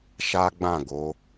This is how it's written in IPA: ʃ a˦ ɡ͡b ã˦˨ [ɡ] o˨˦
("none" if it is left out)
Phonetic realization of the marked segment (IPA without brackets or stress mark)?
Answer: ɡ